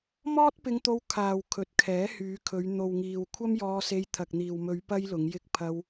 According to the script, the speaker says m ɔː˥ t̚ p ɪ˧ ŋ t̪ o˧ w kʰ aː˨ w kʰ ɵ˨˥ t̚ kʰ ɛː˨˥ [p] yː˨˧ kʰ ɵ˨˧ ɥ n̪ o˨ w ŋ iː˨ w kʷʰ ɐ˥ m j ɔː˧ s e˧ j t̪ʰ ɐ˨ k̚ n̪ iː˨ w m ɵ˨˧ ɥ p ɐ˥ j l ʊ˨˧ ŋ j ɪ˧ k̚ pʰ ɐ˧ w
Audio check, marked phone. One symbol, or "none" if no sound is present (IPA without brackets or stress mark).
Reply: h